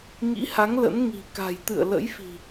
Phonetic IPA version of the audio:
ŋḭ˧˥ha˨˦ŋ lə̰˧˥n ŋi̤˨˩ka̤˨˩jt̪ɨ̰˧˨ə̯ lə̰˧˥jfi̤˨˩

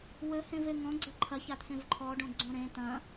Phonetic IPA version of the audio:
wɘhẽve ŋɔ̃ɡ͡ǀɐ ǃʰɐçat̪ʰẽv ǃʰɔɖõɡ͡ǀõ ɾẽ t̪ɐ̃

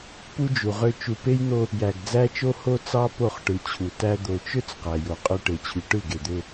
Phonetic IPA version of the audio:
pu˦d͡ʒu˨ʁø˦ t͡ʃu˨pe˦jn̪o˦ | jæ˨ɡd͡zæ˦t͡ʃo˦ ho˦t͡sɑ˦ po˦˨χʈɯ˨t͡ɕʰu˨tæ˦ d̪o˨t͡ʃø˦t͡s qæ˨jo˨qʼø˦ ʈe˨t͡ɕʰy˨ ʈɯ˦˨ɡe˨d̪ø˦

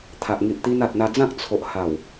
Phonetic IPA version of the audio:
t̪ʰa˨ʔŋi˨ʔt̪i˧n a˨t̚n̪a˧d͡zã˦k̚ t͡sʰo˨ʔha˨˩w

